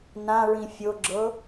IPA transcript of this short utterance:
n ã ɹ ĩ fʲ o ɡ͡ǁ ɤ

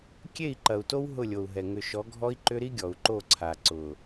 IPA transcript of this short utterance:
kʲ e˦˨ i̯ ǃ ɐ˨ u̯ t o˦ w ɦ ʊ˦˨ lʲ o˨ u̯ ɦ ɛ˨ ŋ ʏ˨ ʃ ɔ˨˦ ɡʱ ɔ˦ i̯ ǃ ʏ˦ ɾ i˦ ɡʲ ɔ˨ u̯ ǃ o˦˨ ǀʰ a˨ ǀ ʊ˨

